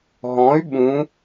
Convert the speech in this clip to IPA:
ɦ ɔ̃ y̯ ɓ ũ

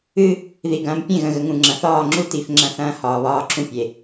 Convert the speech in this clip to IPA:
ɨ˦ | ð i˨ ɡ ɐ̃ː˨ m pʲ ẽ˦˨ ɣ ə̃˨ ɣ ə˨ ŋ ũ˨ ŋ͡ǁ ɐ̃˨ θ ɒː˦˨ ŋ͡ǁ u˦ t i˨˦ f ŋ͡ǁ ɐ̃˦ θ ɐ̃ː˦ h ɒː˨ β ɒː˦ ǁʰ ũ˦ pʲ e˨

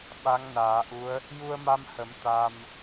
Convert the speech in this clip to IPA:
ɓ a˧˥ ŋ n aː˨˩˦ ʔ u˧˥ ə̯ | j u˧ ə̯ m a˧ m h ə˨˩˦ m t̪ a˧ m

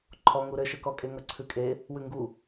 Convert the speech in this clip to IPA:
ǃʰ ɔ ŋ u ɾ ɘ ʃ ɘ k ɔ kʼ e ŋ ʌ ǀʰ ʉ kʼ e | w ʉ ŋ ɡ u

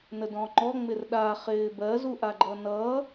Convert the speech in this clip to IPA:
n ə d ɔ̃ ŋ͡ǃ ɔ ŋ͡m ɪ r ɗ a χ ɪː b ɜ z u ʔ a ɡ͡ǃ ʌ n ʌː

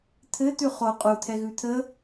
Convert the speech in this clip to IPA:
t̪ʰ ɘ t̪ ʉ χ o qʼ u t̪ʰ ɛ ɣ ʉ t̪ʰ ə

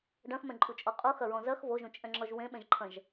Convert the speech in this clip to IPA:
ɖ ɐ̃ x m ɛ̃ ǃʼ u t͡ʃʼ ɔ qʼ u x ɐ ɹ ɔ̃ z ɐ x v o ʒ ũ t͡ʃʼ ɛ̃ ŋ͡ǁ ɔ ʒ w ẽ ɓ ɛ̃ ʒ ǃʰ ɐ̃ ʒ

